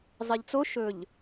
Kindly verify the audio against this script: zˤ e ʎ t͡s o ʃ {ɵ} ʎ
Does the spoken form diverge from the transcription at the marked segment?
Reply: no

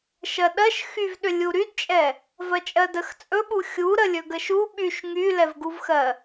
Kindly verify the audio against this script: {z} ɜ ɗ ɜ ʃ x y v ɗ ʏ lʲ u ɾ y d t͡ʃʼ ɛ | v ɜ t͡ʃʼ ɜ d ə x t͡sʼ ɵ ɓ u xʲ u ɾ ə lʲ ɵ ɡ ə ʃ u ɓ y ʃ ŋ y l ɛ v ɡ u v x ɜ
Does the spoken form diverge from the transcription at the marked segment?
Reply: yes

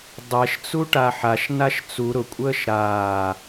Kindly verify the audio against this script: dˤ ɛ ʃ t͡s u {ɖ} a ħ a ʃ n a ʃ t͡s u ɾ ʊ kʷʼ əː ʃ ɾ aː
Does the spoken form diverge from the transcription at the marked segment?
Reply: yes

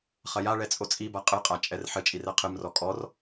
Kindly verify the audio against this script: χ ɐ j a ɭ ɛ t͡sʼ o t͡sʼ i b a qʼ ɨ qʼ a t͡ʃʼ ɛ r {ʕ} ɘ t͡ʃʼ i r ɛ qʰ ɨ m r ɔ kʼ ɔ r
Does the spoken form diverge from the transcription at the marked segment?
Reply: yes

